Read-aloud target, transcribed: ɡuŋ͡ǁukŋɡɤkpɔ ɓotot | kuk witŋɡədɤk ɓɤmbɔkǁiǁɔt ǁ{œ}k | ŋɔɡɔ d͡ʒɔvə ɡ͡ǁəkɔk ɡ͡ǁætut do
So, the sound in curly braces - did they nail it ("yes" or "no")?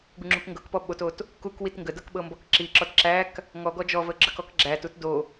no